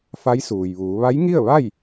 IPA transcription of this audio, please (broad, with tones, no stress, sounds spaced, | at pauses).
f a˧˥ j s uː˩ j ʋ uː˩˧ ʋ a˧˥ j ŋ i˥˨ ə̯ ʋ a˥˨ j